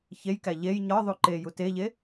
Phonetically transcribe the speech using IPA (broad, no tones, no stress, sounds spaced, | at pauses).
ç e j k æ ʎ e j ɲ ɒ ðˤ u ǃ e j u t e ʎ e